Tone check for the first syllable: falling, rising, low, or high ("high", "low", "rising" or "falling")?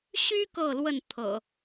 high